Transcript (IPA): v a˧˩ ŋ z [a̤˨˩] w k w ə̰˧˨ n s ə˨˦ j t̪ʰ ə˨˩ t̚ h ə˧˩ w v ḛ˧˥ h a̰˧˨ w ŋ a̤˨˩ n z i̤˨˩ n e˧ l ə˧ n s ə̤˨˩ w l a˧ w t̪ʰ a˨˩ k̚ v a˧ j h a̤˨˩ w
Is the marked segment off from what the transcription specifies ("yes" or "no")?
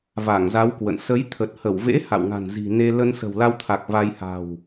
yes